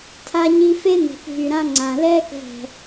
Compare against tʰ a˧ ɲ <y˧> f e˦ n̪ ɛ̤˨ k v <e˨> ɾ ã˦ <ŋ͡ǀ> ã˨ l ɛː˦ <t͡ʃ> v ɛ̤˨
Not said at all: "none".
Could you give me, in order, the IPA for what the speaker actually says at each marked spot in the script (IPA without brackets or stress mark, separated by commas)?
i˧, y˨, ŋ͡ǀ, k